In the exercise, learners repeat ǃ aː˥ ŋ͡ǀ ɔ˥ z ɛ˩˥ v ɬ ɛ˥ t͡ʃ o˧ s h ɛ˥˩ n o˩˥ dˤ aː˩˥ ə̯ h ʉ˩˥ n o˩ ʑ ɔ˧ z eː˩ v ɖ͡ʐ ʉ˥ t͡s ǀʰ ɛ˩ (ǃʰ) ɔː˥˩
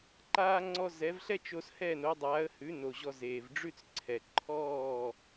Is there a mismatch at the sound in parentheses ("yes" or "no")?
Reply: no